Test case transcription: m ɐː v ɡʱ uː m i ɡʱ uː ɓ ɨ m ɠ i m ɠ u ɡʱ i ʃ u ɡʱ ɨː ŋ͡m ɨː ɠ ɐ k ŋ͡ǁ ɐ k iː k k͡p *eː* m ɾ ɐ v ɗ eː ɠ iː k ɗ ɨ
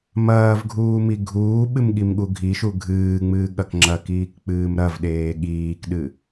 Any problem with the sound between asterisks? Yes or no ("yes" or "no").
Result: yes